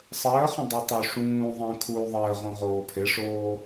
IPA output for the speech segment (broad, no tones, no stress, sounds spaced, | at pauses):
sˤ əː χ ə̃ dˤ o tˤ o ʂ ũː ðˤ ə̃ː kʰ uː ðˤ əː ʁ õ ʁ oː pʰ e ʂ oː